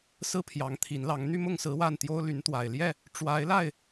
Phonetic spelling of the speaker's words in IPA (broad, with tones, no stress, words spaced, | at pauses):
sɹ̩˦pʰjɑ˨˦ŋt̪ʰi˨˦nlɑ˨˦ŋ n̪y˥˨mʊ˥˨ŋsɹ̩˨˦ wa˥˨nt̪jo˦ʊ̯ ly˨˦nt̪wa˨˩ɪ̯ ljɛ˥˨ | ʈ͡ʂwa˨˦ɪ̯la˥˨ɪ̯